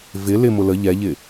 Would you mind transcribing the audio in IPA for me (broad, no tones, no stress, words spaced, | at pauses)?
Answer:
vɪ lɪmʊ lə ʎɛʎɪ